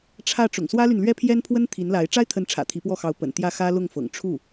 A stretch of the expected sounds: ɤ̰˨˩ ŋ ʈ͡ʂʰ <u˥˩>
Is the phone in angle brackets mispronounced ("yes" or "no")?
no